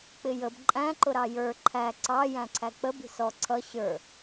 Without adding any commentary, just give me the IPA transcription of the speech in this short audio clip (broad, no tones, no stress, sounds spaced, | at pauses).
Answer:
k͡p ɪ j ə b ǃʼ æ̃ ǃ ʊ ɾ ɑ j ə˞ ǃʰ æ ǀ ɑ j æ̃ ǀʰ æ k͡p ə b i̤ s ɔ ǀʰ ʌ ɕ ə˞